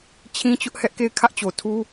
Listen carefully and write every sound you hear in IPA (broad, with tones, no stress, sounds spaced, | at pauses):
t͡ɕʰ ĩ˦ t͡ɕ ʊ˦ ʔ h ɛ˦ ʔ k e˦˨ ɪ̯ kʰ ä˦ ʔ t͡ɕ o˨ tʰ u˦